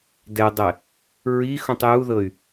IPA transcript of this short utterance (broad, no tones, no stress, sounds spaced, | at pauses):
d ɛ dˤ ɛ | ɹ i x ũ tˤ j u ð ɤ y̯